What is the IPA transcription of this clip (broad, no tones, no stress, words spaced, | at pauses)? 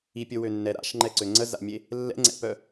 ipʲɵwønːɛ ɾa̰ʃŋ͡ǃɛǀø ŋ͡ǀəza̰mʲe | lːɛ̰ŋ͡ǀɛ̰pœ